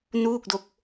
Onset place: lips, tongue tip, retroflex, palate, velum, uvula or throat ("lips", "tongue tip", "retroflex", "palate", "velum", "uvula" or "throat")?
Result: tongue tip